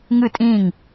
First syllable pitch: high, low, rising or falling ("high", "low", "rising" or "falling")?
falling